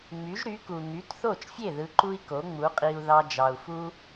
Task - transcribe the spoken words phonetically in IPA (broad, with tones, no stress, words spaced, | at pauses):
ŋ͡my˩˥ʒɾy˩˥ ku˩ŋy˩˥tθo˥˩t͡ʃfʲe˥˩ ðɯ˧ǃu˥i̯ko˩˥ ŋ͡mu˩˥qʼi˧u̯ ðɑ˧d͡ʒɑ˩u̯fu˥